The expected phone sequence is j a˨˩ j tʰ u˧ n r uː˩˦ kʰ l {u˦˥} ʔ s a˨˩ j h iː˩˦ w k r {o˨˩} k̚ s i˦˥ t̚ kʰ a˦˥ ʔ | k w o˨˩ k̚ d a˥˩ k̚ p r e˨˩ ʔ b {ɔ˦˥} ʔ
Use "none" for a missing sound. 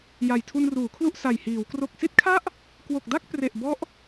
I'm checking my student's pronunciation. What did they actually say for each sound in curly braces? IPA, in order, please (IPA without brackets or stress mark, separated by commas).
u˥˩, o˨˩, ɔ˦˥